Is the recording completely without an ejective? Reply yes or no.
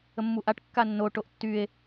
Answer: yes